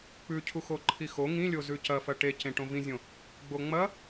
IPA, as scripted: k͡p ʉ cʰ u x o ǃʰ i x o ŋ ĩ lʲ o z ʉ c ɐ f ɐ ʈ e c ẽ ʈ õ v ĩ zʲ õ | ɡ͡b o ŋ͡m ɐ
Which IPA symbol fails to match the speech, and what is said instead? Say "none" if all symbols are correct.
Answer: none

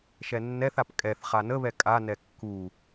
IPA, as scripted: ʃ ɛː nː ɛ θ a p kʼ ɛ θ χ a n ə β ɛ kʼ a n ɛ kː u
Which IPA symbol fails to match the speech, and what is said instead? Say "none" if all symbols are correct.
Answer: ɛː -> ɛ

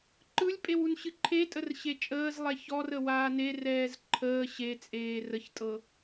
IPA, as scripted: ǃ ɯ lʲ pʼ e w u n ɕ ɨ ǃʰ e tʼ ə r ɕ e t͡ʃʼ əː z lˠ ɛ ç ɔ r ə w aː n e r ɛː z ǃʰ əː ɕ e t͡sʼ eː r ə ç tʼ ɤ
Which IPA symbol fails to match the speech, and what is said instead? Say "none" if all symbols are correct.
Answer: none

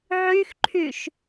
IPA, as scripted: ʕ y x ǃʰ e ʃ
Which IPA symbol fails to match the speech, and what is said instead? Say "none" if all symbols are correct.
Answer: e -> y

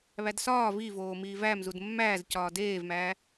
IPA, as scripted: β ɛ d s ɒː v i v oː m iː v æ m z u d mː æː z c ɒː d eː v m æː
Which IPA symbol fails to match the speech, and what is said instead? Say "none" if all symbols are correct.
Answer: ɛ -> æ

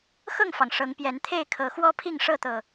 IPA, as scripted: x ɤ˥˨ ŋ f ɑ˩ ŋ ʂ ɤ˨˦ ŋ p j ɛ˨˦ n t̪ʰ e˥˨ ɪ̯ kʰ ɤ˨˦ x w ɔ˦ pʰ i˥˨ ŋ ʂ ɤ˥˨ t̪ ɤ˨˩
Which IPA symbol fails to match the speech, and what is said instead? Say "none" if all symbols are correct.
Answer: none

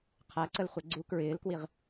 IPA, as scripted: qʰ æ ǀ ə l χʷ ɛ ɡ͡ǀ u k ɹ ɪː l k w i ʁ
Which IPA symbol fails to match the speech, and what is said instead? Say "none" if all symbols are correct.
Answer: none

